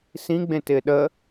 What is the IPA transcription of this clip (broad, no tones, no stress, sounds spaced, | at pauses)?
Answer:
s ĩ ɡ͡b ẽ t ɪː ɗ ə